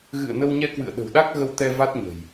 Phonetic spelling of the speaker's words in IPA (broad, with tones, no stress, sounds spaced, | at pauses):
ɣ ɨ̰˧˨ ə̯ n ə˧ w ɲ ɛ˧ k w ɨ̰˧˨ ə̯ ɗ ə̤˨˩ w ɗ a˦˥ k̚ ɣ ə˧ w t̪ ɛ˧ v a˦˥ t̚ ɲ ə̤˨˩ j